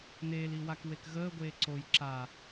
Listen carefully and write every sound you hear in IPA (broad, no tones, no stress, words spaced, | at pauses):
neːli wakwekɣəːɡʷeː ǀoj ǁa